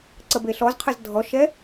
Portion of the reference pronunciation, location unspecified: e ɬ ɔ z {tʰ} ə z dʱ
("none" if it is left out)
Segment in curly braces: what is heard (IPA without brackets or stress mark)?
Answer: qʰ